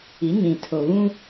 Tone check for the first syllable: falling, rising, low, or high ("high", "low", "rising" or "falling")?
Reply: rising